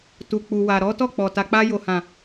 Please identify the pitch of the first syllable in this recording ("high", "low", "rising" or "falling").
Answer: low